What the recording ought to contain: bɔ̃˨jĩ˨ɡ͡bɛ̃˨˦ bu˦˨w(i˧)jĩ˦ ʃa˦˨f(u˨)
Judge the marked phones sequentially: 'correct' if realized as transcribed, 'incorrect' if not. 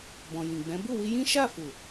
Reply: correct, correct

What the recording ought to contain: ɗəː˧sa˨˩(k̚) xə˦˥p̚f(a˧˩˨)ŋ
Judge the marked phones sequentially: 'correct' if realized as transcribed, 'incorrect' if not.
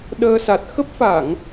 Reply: incorrect: t̚, correct

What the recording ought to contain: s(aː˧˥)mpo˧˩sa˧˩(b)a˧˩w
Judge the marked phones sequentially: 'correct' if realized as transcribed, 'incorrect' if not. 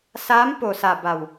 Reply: correct, correct

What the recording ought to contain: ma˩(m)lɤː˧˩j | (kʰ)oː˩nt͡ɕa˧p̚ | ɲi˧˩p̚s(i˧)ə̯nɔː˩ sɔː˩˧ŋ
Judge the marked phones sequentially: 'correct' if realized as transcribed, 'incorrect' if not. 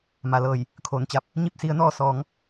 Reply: incorrect: none, correct, incorrect: i˩˧

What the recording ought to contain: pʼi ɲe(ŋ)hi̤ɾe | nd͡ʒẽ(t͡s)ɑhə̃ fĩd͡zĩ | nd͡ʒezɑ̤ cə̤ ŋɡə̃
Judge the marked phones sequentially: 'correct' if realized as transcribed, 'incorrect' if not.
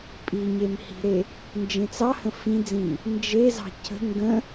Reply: incorrect: m, correct

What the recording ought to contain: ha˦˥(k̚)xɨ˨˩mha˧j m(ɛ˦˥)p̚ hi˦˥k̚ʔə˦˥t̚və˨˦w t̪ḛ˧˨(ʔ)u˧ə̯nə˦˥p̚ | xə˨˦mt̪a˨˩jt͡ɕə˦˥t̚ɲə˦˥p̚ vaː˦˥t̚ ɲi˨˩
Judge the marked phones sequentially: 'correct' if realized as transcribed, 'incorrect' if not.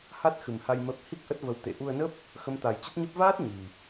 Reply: incorrect: t̚, incorrect: ə˦˥, correct

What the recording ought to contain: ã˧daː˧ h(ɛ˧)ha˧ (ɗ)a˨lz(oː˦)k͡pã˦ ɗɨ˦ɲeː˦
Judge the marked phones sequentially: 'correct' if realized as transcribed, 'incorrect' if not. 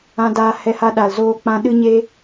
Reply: correct, correct, correct

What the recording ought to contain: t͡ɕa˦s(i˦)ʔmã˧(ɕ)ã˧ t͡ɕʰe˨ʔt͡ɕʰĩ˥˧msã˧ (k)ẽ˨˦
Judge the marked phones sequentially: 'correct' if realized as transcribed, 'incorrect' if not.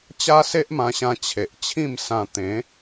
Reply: incorrect: e˦, correct, incorrect: t̪

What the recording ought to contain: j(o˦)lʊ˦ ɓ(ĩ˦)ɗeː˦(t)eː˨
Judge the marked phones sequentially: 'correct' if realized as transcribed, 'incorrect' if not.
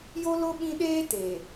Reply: correct, correct, correct

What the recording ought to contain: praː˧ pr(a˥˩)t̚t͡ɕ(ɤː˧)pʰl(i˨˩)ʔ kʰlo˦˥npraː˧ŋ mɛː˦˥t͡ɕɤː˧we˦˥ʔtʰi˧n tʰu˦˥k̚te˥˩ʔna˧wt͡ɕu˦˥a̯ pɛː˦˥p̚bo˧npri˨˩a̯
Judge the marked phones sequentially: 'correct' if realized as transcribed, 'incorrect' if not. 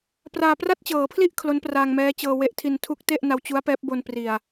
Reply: correct, incorrect: ɤː˩˦, incorrect: i˥˩

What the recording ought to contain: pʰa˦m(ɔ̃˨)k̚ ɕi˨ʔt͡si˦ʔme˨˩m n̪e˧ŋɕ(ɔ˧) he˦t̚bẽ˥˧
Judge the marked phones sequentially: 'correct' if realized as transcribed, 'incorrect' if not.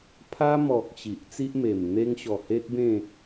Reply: incorrect: ɔ˨, incorrect: ɔ˨˩

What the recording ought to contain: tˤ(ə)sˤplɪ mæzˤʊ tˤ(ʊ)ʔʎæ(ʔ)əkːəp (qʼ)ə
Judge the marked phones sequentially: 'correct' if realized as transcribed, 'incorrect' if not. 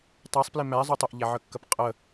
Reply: incorrect: æ, correct, incorrect: ʕ, correct

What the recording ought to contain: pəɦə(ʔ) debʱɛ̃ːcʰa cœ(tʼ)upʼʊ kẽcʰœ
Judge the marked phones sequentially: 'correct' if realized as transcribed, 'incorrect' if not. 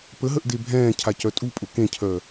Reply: correct, correct

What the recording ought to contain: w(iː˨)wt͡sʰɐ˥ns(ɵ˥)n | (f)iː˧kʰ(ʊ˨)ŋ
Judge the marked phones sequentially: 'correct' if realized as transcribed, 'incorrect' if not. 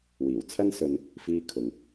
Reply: incorrect: iː˨˩, incorrect: ɵ˧, correct, correct

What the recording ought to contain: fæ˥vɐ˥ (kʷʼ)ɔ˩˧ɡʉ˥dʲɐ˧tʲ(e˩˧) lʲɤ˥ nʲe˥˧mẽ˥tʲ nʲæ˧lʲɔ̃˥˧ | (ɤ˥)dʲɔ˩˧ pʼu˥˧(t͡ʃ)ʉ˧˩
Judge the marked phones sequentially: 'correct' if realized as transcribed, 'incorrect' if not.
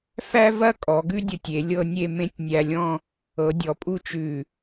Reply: incorrect: kʼ, correct, incorrect: ɤ˩˧, correct

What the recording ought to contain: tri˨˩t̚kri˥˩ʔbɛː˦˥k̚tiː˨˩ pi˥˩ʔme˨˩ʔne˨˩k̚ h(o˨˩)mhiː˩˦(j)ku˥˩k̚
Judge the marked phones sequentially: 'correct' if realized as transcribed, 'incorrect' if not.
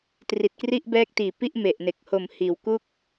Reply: correct, incorrect: w

